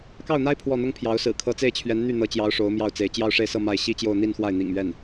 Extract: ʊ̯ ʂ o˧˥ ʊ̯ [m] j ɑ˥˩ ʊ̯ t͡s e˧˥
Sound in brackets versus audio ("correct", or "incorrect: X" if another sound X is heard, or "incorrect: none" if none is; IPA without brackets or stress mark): correct